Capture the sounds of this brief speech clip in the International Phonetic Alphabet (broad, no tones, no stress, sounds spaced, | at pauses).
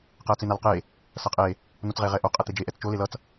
q ɛ ɐ̯ t͡s e n a l q e | s ʌ qʼ e | n o t͡s ʁ e ʁ ɛ ʔ o qʼ ɛ t̪ e d͡ʒ e ʔ ɛ t͡s t͡ʃ o l e l ʌ t͡s